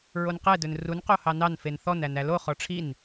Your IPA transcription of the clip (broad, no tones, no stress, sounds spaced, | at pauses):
ɹ o n q ɛ d ɵ n r u n q o h ɑ n ɑ n f e n θ ɔ n æ n æ l o χ ɔ ʈ͡ʂʰ i n